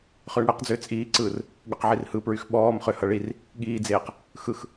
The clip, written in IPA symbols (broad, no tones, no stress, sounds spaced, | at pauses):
χ ʏː ɳ ɽ e q d͡z ʏː t͡sʼ iː ǀ ɯː r | ɠ ʏ q ʕ i r h ɯ p ɹ y x ɓ ɔː m χ ʏ h ʌ ɭ i r | ɠ iː d͡z eː q | x ɯ x